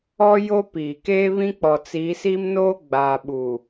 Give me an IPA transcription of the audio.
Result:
ɔ˦ j o˦ p iː˨ k eː˦ β ĩ˦ k͡p ɔ˨ t͡s iː˨˦ s i˦ m n oː˦ ɡ͡b aː˨ ɓ u˨

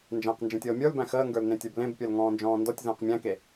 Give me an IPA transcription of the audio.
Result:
n d͡ʒ æ̃ q n d͡ʒ ẽ tʲ ɤː mʲ ə˞ l b æ̃ x əː ŋ ɡ ə˞ l n ẽ tʲ ə˞ b l ẽ b pʲ ə˞ l ŋ ɔ̃ː n d͡ʒ ɔ̃ː n d ɔ tʲ z ə̃ː q mʲ æ̃ k e

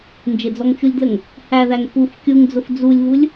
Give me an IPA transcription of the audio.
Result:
n d͡ʒ ɪ d͡z ɔ ŋ t͡ʃ u lʲ d l ə ŋ | h æ ð æ ŋ p u f kʲ u ŋ d͡z ʊ f d͡z u lʲ v u lʲ

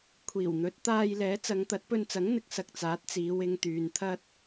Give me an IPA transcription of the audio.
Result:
kʷʰ iː˨˩ w n̪ ɵ˨˥ t̚ t̪ aː˧ j l ɛː˨˥ t͡s ɐ˨˧ ŋ t̪ ɐ˨˥ t̚ p ɵ˧ n t͡s ɐ˨˥ ŋ n̪ ɪ˨˥ k̚ s ɐ˨ k̚ t͡s aː˨˥ t̚ t͡s iː˨˧ w ɪ˧ ŋ t̪ yː˨ n t̪ʰ ɐ˥ t̚

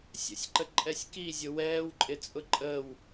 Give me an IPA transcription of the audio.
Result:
sʲ ə̰ sʲ ǃ ə ǃʼ ɛ sʲ k i zʲ ʊ w ɛː w ǃʼ ɪ t͡sʼ ʊ ǃʼ əː w

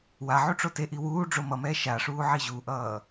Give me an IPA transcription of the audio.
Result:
w a ʕ u ʈ͡ʂ o t e ʔ i w uː ɖ͡ʐ o m ʌ m ɛː ʃ a ʂ uː ʕ i ʑ u ʔ ʌː

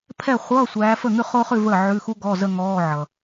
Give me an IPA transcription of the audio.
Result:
pʰ ɛ˥˩ χʷ ʌː˧˥˧ sʷ æː˨˦ f ə˥˩ ŋ ʉ˥˧ χ o˥ χ ʉ˥˧ v əː˥˩ ʕ ʉ˧˥˧ x u˥ ɡ ɔ˧˥˧ z ə˥˧ ŋ ɔː˧˥˧ ʕ ʌ˨

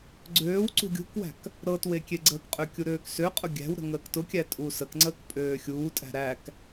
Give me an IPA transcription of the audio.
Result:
ɡ͡ǀ øː w ǀ ṳ ɡʲ ṳ k w æ̤ k | ɾ ɤ t w e kʲ e ɡ͡ǀ əː k qʼ ø kʲ u ɾ øː k s ø qʼ ʊ ɡʲ æ̤ w ɾ ə̤ ŋ əː k t ʊ kʲ æ tʼ u s ə k ŋ͡ǀ əː k pʼ øː xʲ uː tʼ æ̤ ɾ æ k

